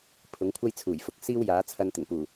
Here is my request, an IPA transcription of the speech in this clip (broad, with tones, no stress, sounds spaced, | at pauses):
pʰ ʊ˨˥ ŋ kʷʰ ɐ˥ j t͡sʰ uː˨˩ j f ʊ˨ k̚ s iː˥ w j aː˨˥ t͡sʰ ɐ˧ n t̪ ɪ˨˩ ŋ p uː˨˩